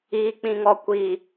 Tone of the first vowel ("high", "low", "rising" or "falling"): low